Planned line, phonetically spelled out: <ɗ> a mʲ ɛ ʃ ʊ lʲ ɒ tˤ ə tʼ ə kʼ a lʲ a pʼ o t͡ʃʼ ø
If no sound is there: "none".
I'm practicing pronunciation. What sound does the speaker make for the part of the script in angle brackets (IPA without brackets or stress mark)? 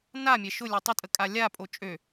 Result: n